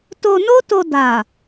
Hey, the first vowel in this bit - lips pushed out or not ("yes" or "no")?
yes